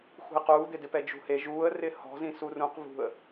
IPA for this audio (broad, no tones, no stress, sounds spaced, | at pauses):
x ṳ ɪ̯ q uː d̪ ɪ d ɪ p ɛ d͡ʒ ṳ h e ʒ uː ə̯ r ɪː h ɔ̤ z ĩ s u r ũ q v ṳ ə̯